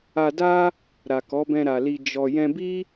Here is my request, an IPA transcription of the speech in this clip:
a˧ d a˦ | ɾ a˨ k ɔ˨˦ b ɛ̃˧ ɾ a˨ l i˧ d͡ʒ ɔ˨ j ɛ̃˧ b i˦

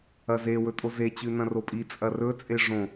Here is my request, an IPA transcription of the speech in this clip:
ɐ z e w ɵ tʼ o z e t͡ɕ ʉ n ɐ̃ r o pʼ i t͡sʼ ɐ r ɵ t͡sʼ e ʐ õ

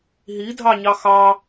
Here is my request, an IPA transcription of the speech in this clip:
ɦ i dʱ ɑ ɲ ɑ x ɑ

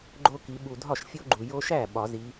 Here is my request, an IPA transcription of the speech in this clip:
ɡ͡ǃ o˦ k i˨˦ ɓ u˨ dʱ ɒ˥˩ ʃ fʲ o˦ ɡ͡ǃ u˨ j o˦ ʃ æ˥˩ ɓ ɒ˨˩˦ z i˨˦

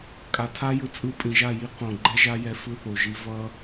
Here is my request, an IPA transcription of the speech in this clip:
kʼ a˨ tʰ a˦ j ɯ˧ t͡sʼ ɯ˧ pʼ ĩ˨ ʒ a˦˨ j i˦ q õ˨ ɡ͡ǃ ɛ˦ ʒ a˦ j ɛ˧ f ɯ˧ θ o˨ ʒ i˦ v ʌ˦

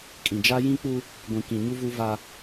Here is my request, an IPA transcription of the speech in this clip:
kʼ ĩ˨ d͡ʒ a˦ j ĩ˦ k͡p u˦ | ɡʷ ĩ˨ k ĩ˨ ɲ u˦ v u˦ v a˦

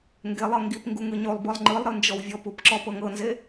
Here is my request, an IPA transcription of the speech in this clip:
ŋ ɡ e lˠ ɤ ŋ ɡ i p ŋ ɡ u ŋ ɯ ɲ o lˠ b ɯ lˠ ŋ͡ǃ ɯ lˠ ɾ ɯ n d͡ʒ ɔ w vʲ ɔ p u p ǁ ɔ p ɤ ŋ ɤ n z e

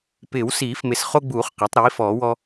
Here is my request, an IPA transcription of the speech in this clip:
p ɪː˨˩˦ w s iː˨˩˦ f m ɪ˨˩ s χ o˦ ɡ͡b uː˨˩˦ χ q a˩˥ tˤ ɾ iː˩˥ f ɔː˨˩˦ w ɔ˦

